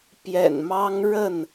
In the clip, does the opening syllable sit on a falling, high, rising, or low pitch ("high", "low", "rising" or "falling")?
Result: low